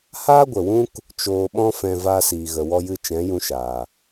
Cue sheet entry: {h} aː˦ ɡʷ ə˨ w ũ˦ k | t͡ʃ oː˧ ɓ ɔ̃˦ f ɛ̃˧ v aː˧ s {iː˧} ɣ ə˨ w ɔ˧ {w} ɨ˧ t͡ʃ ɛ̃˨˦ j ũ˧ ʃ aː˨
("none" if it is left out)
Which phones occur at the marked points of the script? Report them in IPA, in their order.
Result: h, iː˨, j

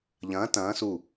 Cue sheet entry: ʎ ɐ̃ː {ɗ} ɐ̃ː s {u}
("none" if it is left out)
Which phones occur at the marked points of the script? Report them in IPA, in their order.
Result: t, u

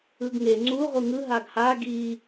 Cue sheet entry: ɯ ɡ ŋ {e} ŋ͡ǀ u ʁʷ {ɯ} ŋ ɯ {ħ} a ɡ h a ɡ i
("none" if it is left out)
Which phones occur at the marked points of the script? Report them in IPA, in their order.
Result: e, ɯ, ɦ

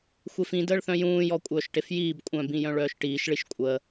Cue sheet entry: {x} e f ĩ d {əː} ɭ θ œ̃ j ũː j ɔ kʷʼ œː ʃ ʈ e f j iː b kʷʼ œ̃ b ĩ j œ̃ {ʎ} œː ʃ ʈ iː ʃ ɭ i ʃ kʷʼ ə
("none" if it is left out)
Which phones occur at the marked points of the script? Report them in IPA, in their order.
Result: xʷ, əː, ɭ

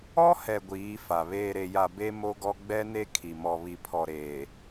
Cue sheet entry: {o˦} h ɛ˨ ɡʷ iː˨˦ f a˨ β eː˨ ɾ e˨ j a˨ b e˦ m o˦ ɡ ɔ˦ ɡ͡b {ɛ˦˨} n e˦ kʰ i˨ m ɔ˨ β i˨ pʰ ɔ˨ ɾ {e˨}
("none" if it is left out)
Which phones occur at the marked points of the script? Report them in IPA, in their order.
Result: ɔ˦, ɛ˦, eː˨

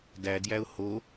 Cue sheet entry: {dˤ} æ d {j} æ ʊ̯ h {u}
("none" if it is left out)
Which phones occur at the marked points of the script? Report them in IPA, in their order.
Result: d, j, o

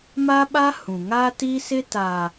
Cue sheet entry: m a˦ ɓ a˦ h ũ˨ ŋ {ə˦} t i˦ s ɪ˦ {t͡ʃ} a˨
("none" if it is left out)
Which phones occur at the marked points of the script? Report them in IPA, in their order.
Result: a˦, t

